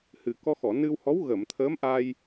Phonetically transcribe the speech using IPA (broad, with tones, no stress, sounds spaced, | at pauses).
h ɨ˨˩ k ɔ˧ x ɔ˨˩˨ n ɨ˧ w h ɔ˧˥ w ɣ ə˨˩˨ m t̪ʰ ə˧˥ m ʔ a˧ j